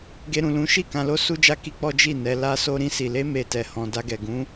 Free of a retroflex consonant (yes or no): yes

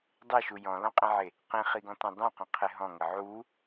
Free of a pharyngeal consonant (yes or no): no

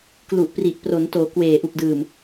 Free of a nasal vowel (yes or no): yes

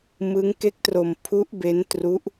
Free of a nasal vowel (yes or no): yes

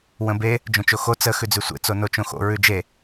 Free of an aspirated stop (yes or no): yes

